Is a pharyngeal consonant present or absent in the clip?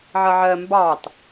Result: present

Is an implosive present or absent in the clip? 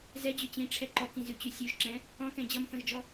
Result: absent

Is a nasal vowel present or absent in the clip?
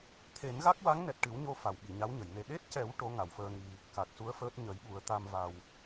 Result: absent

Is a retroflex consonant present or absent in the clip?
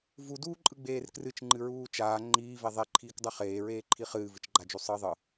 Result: absent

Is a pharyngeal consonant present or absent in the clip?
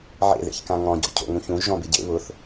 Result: present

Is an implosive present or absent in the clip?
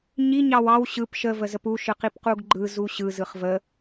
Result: absent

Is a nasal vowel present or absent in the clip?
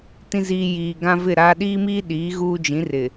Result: present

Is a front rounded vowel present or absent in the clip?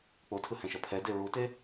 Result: absent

